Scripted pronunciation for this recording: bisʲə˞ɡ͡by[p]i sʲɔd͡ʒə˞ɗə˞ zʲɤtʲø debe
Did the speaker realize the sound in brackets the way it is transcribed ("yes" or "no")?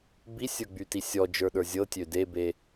no